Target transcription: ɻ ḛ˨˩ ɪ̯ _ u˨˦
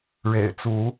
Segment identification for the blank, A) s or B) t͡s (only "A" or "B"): B